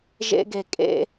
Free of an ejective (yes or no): no